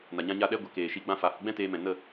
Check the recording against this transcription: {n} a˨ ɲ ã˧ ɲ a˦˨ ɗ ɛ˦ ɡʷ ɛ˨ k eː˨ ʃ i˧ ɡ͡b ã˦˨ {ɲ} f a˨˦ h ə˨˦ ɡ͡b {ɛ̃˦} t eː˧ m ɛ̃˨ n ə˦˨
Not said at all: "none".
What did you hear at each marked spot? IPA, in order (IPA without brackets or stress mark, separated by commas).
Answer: n, none, ɛ̃˦